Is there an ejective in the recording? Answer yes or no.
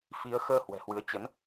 no